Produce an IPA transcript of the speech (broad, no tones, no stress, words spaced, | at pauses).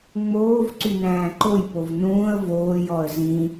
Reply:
ŋ͡moːv ǀynæ̃ːǃojpov nũːə̯ voːjɔə̯ zĩ